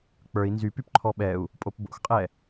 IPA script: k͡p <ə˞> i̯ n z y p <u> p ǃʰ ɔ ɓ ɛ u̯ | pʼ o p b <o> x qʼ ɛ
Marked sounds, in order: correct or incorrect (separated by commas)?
correct, incorrect, incorrect